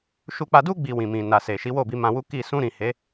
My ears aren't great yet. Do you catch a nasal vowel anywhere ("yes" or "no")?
yes